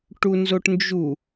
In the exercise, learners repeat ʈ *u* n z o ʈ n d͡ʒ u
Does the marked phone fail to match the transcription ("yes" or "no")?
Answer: no